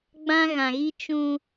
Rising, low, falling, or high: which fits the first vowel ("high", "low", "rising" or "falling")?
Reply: high